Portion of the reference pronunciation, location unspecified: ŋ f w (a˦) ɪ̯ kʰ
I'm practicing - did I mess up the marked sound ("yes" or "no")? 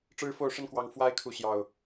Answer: no